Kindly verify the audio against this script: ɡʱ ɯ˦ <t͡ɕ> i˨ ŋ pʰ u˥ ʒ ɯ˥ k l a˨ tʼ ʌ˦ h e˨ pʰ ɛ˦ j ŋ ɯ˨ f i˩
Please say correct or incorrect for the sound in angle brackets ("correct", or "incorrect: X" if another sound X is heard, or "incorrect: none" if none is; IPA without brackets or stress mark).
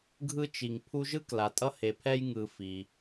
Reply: incorrect: t͡ʃ